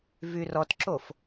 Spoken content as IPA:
vyrɔtǁof

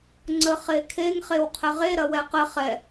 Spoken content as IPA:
ŋ͡ǀəχekʰeŋ χewqʰəʁe ɾɐwɛqə χɛ

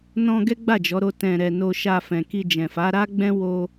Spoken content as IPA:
nɔ̃˧ ɡɛ˦ɡ͡ba˦˨d͡ʒɔ˨˦ɾo˧ tɛ̃˨ɾɛ˨ no˧ʃa˧ fɛ̃˨ki˧d͡ʒɛ̃˨ fa˨˦ɾa˦ɡ͡bɛ̃˦ wo˧

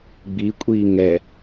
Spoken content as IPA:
ɡ͡bi kʷʼiːŋɛ

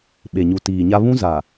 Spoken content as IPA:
ɓe˨ɲu˨tiː˨ɲa˦ βũ˦ za˨

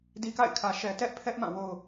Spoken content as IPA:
di˦ka̰˦˨ɪ̯ kʰä˦ʃɛ˦ tɛ˦ʔpʰɛ˦ʔmã˦˨ wo˦ʊ̯

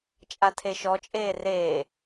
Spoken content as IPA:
t͡ʃʼatʰeʃɔt͡ʃʼeː reː

